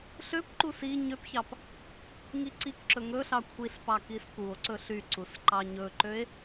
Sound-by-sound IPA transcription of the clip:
ɬøpǃu si ɲøpçɑp | ŋiǀikǁɵ ŋɵɬɑ kʷʰiɬpɑ kiskuo̯ǀɵ ɬyǀus ǃɑɲɵǃøe̯

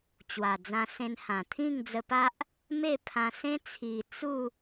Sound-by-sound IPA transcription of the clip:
t͡ɕwa˨˩d͡zã˧sẽ˧nhã˨˩ t̪ʰĩ˥˧ŋd͡zə˧pa˦ʔ | me˥˧pʰã˧ sẽ˦t͡sʰi˨˩ t͡su˥˧

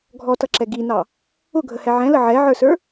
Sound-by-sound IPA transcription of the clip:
ɡʱɔtʌǁɛ ɡinɑ | ʊɡʱəhɛ ʕɛ̃lə ʕɛʕə˞sə˞

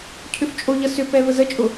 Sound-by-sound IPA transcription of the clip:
cʰʏft͡ʃʼoʎʌ sʏpɛ vəzət͡ʃʼʊ

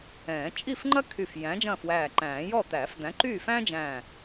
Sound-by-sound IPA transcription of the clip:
ɛ̃ː˨˩˦ t͡ʃʼi˥˨fŋ͡ǃɐ˥ kʰy˧˩f jæ̃˨˥d͡ʒɐ̃ː˥˨fwæː˧˩ǃæ̃ː˨˩˦ jɔ˥˨ t̪æː˨˩˦fd̪æ̃˨˥ǃyː˥˨fæ̃ː˥ d͡ʒæ̃ː˧˩

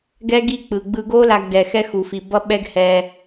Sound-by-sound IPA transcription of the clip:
ɡɛ˦ɡi˦˨k͡pɯ˨ ɡ͡bɯ˧ɡo˦ la˧ɡdɛ˨ xɛ˦xu˨fi˨ bʌ˦ɓɛ˦ɡhɛ˧

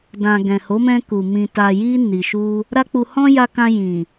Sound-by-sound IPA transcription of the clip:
dã˨ ɡɛ̃˨ho˨˦mɛ̃˧ku˨ mĩ˨ta˨ji˧ ni˨ʃu˧ | ɾa˦k͡pu˧ hɔ̃˦ja˧kã˧ jĩ˨

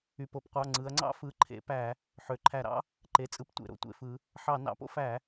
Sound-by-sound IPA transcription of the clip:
y˩˧˩po˩˧pqʷɑ˩˧˩ ŋ͡ǀɯ˩˧ɐ̯ŋ͡ǀɑ̰˥ fɯ˩˧˩ǃʰḛ˧˩˧pæ˧˩˧ | ħø˩˧ǃʰæ˧˩˧ɾɑ̰˥ | ǃe˩˧t͡sʼɯ˩˥ptʷḛ˩˧˩ ɾo̰˥tʷḛ˧˩˧fɯ˩˧ | ħɑ˧˩˧ nɑ̰˩˥po̰˥ fæ˧˩˧

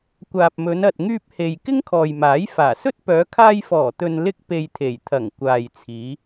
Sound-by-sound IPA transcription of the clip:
kʷaː˨p̚mɵ˨˧nɐ˨t̚ ŋyː˧p̚he˨j kɪ˥ŋkʰɔː˨jmaː˨˥j faː˨˩sɵ˥t̚ pœː˨˧kʰaː˧jfɔː˨˩ t̪ɵ˧n lɪ˥k̚pe˧jt̪ʰe˨˩j t̪ʰɐ˨˩ŋ kʷaː˨jt͡sʰiː˨˧

